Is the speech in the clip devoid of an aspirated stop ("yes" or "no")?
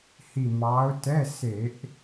yes